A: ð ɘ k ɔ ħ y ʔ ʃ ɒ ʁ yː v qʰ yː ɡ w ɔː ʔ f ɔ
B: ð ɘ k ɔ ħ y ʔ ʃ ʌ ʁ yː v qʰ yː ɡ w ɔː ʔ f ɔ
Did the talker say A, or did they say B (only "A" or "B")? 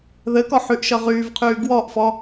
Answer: B